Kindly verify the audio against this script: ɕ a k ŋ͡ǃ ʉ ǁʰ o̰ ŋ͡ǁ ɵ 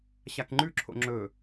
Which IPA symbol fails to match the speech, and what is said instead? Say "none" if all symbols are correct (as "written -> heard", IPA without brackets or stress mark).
none